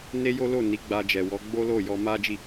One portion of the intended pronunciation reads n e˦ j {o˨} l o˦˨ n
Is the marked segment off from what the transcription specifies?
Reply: yes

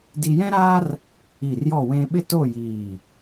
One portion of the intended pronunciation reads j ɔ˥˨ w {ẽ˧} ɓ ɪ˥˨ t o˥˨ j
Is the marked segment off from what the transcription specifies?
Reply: no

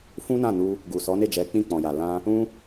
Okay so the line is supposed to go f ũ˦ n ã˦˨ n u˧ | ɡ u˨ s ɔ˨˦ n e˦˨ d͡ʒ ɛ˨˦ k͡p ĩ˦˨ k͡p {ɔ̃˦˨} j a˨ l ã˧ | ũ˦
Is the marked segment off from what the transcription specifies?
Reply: yes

